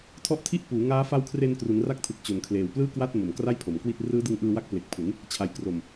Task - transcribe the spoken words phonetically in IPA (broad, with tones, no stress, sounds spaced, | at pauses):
tʰ ɔ˦˥ ʔ tʰ i˥˩ ʔ p uː˩˦ ŋ aː˦˥ f a˦˥ w kʰ r e˧ n k r u˩˦ n r a˥˩ k̚ tʰ ɯ˨˩ k̚ t͡ɕ o˨˩ n kʰ l eː˨˩ w p l ɯː˥˩ k w a˥˩ t̚ m o˨˩ m k r a˥˩ j pʰ o˩˦ m k w i˥˩ t̚ r ɯː˦˥ d ɯ˧ ŋ ʔ ɯː˧ w a˦˥ k̚ p l e˨˩ k̚ pʰ u˩˦ n | t͡ɕʰ a˩˦ j k r o˨˩ m